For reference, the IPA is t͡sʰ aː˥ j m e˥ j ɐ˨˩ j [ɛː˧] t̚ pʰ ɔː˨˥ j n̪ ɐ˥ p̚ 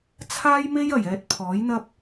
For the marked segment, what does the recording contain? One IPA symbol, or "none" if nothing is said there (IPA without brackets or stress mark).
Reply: ɛː˧